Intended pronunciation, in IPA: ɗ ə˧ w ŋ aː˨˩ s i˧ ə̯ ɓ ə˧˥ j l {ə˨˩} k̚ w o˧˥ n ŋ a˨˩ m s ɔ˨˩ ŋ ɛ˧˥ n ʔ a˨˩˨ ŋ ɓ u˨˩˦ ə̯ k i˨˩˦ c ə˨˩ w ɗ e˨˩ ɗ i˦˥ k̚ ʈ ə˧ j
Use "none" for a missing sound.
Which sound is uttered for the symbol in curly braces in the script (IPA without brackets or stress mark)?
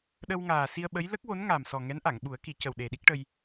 ə˦˥